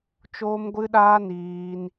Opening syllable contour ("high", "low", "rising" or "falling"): high